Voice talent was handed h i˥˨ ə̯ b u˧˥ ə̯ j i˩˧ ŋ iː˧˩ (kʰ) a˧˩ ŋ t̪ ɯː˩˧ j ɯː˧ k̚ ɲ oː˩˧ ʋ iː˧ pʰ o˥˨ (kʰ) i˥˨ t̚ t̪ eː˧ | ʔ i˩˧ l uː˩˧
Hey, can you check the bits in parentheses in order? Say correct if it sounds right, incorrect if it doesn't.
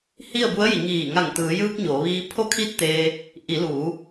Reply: incorrect: ŋ, correct

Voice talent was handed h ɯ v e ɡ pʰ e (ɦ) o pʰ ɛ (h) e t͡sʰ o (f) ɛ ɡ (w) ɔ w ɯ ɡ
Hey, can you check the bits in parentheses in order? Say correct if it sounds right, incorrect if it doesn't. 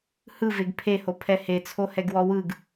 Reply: incorrect: h, correct, incorrect: h, correct

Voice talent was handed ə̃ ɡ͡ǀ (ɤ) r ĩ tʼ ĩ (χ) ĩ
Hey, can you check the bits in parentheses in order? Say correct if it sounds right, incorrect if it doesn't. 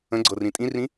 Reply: correct, incorrect: r

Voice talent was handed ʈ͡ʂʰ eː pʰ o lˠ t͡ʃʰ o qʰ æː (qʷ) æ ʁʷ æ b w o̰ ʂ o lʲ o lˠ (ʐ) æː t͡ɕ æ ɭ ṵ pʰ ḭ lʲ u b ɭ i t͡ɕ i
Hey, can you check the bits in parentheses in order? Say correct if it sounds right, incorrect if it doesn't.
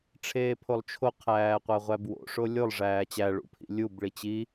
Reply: correct, correct

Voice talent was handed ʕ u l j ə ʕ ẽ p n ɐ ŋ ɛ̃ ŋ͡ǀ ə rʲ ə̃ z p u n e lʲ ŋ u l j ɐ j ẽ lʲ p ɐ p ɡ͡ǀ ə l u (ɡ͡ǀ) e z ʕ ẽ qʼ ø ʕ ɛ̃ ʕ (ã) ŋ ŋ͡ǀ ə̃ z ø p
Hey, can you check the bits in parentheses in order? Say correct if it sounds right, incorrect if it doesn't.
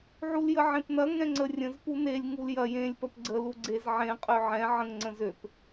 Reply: correct, incorrect: ə̃

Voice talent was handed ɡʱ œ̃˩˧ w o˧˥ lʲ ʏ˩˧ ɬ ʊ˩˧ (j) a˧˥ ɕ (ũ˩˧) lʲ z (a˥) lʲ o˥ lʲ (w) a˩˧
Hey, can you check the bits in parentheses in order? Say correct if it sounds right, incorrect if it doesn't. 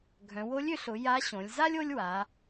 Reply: correct, incorrect: õ˩˧, correct, correct

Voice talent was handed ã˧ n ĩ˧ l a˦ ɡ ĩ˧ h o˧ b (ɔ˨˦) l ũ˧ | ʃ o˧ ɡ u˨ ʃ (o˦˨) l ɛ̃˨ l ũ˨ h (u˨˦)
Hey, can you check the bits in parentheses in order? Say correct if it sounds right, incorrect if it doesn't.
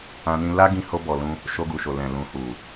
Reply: incorrect: ɔ˨, incorrect: o˨, incorrect: u˨

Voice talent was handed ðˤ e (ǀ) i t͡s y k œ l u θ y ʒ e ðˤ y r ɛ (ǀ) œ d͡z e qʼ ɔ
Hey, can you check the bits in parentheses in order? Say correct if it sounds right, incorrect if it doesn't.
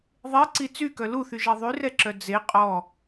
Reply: correct, incorrect: ǁ

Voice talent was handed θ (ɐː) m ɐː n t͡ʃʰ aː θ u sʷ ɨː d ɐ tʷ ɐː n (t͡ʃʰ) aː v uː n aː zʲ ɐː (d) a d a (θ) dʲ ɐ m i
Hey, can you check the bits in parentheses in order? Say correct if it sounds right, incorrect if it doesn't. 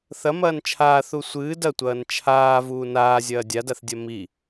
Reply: incorrect: ɐ, correct, incorrect: dʲ, correct

